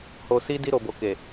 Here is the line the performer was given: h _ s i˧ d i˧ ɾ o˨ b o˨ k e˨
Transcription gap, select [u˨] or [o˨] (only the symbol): o˨